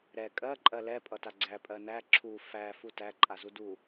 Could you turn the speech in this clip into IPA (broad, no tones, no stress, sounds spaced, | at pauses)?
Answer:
ɾ ɛ kʼ ɜ ǃʼ ɜ l ɛ pʼ ʌ t a ɡ͡ǀ æ pʼ ɜ n æ ǁʰ u f æ f u t æ ǃʼ a z u d u